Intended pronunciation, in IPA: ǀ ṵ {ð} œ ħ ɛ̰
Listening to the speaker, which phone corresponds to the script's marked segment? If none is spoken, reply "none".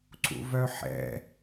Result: v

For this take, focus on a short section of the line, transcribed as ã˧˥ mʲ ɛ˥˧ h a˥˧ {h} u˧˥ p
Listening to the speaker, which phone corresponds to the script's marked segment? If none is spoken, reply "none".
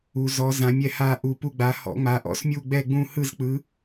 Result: ʔ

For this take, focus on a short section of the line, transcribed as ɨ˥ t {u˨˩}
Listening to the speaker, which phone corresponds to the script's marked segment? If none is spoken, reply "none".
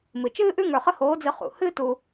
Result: u˧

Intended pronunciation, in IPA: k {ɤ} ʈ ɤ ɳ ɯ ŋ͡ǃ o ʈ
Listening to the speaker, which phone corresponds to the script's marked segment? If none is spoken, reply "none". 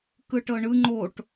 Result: ɯ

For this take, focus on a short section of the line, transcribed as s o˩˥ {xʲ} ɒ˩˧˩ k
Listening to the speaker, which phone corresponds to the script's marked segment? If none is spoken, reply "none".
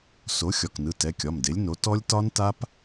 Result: xʲ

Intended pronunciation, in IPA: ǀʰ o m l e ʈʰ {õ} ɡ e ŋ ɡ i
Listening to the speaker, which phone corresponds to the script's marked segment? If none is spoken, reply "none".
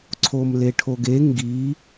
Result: o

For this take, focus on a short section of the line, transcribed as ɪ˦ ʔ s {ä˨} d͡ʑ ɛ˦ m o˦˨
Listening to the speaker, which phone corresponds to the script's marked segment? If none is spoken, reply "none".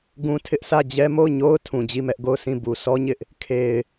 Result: ä˦˨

